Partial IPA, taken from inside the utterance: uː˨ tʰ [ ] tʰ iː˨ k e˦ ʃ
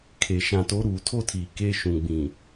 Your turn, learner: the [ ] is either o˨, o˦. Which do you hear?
o˦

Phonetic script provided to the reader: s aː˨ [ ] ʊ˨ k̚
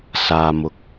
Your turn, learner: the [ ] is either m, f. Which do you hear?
m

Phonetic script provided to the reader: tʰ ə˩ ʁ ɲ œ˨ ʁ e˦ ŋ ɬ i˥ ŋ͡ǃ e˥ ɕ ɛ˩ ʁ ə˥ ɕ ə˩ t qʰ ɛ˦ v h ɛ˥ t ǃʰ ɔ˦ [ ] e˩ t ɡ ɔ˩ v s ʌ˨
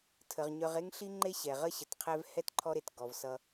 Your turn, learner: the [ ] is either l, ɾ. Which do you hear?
ɾ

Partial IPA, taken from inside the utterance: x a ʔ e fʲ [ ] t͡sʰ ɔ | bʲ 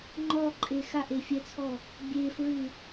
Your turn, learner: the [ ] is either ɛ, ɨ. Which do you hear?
ɛ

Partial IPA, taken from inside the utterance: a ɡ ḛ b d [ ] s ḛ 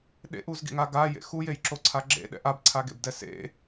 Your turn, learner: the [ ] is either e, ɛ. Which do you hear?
ɛ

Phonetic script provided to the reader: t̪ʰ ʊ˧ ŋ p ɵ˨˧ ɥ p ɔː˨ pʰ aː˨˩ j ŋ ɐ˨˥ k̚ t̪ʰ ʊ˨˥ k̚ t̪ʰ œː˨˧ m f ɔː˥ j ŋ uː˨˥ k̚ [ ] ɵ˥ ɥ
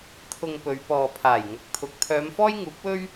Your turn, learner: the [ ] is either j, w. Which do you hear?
w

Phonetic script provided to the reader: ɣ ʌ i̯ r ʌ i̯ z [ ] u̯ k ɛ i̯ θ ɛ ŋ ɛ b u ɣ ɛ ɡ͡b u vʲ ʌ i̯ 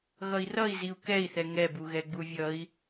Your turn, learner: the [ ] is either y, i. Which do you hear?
i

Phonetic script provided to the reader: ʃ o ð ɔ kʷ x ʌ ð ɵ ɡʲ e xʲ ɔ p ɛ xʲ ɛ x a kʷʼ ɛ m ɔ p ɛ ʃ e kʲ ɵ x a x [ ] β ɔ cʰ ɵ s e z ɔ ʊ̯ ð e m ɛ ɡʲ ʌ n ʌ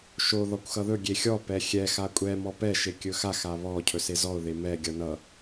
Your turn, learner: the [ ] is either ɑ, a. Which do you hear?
a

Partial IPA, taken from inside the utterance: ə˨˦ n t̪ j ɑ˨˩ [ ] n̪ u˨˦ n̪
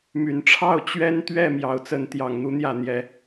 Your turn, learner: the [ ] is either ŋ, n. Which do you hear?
ŋ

